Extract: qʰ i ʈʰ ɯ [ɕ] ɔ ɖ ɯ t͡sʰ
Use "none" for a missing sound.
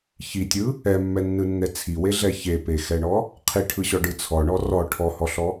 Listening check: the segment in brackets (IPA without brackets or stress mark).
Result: ɕ